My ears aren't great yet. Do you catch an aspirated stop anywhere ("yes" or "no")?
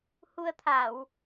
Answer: yes